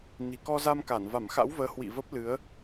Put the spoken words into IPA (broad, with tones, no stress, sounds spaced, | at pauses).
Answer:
n i̤˨˩ k ɔ˧ z a˧ m k a˧˩ n v a˧˩ m x a̰˧˥ w v əː˨˦ h w ḭ˧˨ v ə˦˥ p̚ l ɨ˨˦ ə̯